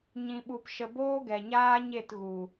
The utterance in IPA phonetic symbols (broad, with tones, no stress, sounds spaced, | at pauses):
ɲ ĩ˧ ɓ u˧ p ʃ ə˧ b oː˦ ɡ ɛ˨ ɲ aː˦ ɲ e˦˨ t ɣ u˨